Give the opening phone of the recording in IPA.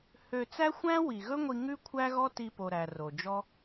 h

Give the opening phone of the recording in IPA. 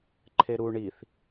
ǃʰ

